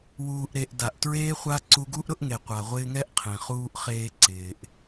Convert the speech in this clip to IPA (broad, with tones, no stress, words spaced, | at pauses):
wuː˨ʔɾe˨ʔ da˨ʔtɹeː˦χʷa˦ ǀu˧ɡu˦ʔɾʊ˦ʔŋe˨ qʷa˨ʁʷɪː˧ŋɛ˦ʔqʰẽ˨ χuː˧ʔ χeː˧ǀɪː˨ʔ